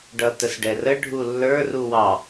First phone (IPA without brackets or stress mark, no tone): ɖ